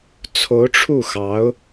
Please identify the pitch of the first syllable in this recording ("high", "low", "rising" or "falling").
rising